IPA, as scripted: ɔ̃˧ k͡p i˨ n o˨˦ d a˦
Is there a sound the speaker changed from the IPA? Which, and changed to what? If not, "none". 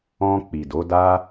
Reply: n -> d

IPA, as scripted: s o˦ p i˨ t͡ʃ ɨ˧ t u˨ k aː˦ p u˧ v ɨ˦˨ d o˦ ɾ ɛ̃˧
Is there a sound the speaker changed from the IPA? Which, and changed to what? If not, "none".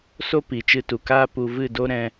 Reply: none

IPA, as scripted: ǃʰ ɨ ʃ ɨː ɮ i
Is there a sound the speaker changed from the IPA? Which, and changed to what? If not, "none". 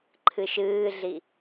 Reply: none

